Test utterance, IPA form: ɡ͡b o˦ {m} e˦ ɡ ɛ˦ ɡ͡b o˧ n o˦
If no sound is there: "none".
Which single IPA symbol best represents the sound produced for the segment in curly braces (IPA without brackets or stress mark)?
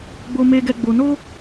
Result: m